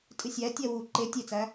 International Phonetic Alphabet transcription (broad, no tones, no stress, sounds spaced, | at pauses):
tʼ ɨ sʲ æ tʲ æ w u ǃ e tʲ e t͡s æ